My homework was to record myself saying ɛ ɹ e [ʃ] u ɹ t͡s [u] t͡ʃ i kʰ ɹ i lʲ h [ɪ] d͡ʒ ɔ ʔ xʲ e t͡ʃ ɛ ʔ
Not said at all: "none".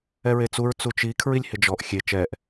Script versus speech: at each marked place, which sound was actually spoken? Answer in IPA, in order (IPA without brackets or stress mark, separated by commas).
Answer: t͡s, u, ɪ